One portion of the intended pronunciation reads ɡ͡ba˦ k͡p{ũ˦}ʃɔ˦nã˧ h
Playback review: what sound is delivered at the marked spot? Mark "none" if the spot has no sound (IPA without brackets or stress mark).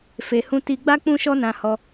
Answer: ũ˦